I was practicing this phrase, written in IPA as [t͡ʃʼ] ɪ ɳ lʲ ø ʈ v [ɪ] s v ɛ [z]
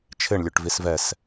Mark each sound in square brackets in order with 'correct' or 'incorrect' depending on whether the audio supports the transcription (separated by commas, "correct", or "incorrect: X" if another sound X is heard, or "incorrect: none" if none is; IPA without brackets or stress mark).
incorrect: t͡ʃʰ, incorrect: i, incorrect: s